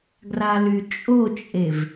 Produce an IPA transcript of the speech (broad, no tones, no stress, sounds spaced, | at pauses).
ɡ r a l y t͡ʃʼ o t͡ʃʼ e v